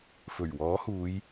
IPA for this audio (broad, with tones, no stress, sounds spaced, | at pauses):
f ɵ˨˩ ɥ w ɔː˨˥ h uː˨˧ j